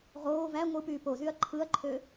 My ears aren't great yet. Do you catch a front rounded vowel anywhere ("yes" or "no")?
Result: yes